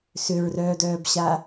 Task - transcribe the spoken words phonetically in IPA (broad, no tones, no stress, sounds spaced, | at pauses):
s ʏ ɹ r œː d œː b ɕ a